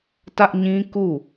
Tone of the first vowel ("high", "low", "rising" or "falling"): high